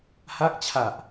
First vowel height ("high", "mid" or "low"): low